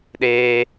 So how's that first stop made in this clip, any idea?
implosive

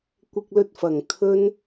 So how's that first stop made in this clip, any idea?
plain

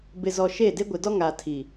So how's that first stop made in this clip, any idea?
plain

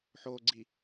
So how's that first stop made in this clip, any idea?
click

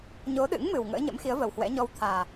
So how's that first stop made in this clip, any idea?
implosive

